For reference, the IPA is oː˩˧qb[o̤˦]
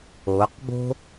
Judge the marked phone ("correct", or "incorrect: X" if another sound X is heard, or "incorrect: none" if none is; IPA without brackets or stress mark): correct